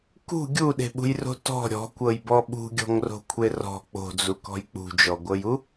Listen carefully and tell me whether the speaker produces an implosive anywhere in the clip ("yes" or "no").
yes